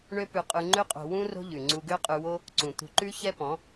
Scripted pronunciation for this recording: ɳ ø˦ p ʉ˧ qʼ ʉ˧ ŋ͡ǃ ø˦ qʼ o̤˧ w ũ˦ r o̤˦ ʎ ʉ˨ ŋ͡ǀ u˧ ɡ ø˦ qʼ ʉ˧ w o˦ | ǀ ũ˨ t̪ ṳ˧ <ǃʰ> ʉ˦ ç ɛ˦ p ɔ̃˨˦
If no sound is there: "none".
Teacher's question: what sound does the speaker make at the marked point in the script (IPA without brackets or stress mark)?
ǃ